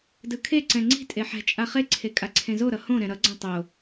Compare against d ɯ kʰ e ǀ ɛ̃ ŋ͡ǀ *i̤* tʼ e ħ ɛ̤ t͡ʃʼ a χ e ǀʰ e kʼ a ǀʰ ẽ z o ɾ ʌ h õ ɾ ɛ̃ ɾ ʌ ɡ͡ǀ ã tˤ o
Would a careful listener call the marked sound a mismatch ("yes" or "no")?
no